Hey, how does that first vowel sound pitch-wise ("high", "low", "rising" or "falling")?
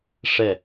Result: falling